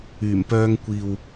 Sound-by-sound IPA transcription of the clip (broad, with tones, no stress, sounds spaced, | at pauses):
yː˨˩ m p œː˧ ŋ kʷ iː˨ w